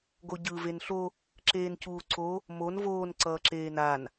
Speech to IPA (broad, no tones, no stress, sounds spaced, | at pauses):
ɡ o ɟ ɯ v e n ɬ o | ǁ eː n c uː ǀ o | m o n v oː n ǀ ʌː ǁ eː n a n